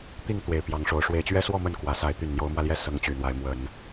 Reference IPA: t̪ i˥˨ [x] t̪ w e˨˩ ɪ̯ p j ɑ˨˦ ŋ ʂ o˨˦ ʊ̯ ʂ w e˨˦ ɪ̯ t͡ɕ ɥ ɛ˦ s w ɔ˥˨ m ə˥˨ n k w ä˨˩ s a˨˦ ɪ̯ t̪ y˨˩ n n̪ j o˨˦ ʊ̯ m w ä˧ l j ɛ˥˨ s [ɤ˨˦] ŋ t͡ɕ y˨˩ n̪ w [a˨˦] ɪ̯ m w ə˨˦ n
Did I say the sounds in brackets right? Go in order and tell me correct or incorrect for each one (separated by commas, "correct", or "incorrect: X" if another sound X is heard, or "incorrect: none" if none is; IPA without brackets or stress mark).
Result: incorrect: ŋ, correct, correct